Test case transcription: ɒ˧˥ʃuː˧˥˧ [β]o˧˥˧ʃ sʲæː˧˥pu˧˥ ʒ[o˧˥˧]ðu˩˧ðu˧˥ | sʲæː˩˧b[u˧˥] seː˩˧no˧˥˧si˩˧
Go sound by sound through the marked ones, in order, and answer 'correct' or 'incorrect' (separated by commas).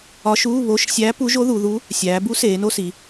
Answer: correct, incorrect, correct